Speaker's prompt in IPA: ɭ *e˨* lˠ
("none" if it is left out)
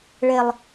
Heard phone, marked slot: e˦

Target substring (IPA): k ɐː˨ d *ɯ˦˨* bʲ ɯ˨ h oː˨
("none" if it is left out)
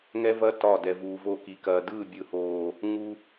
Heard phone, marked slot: ɯ˦˨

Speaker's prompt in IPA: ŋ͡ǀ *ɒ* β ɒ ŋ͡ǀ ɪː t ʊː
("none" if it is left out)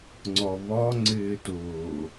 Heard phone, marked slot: ɒ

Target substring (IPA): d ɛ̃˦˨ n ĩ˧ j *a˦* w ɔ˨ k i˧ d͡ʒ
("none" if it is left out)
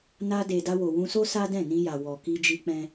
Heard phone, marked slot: a˨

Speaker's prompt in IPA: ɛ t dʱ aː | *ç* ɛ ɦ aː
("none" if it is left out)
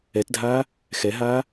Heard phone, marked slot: x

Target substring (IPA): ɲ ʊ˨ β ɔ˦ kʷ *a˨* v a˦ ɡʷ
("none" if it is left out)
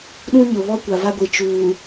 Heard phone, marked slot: a˨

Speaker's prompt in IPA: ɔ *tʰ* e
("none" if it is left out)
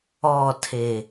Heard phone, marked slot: tʰ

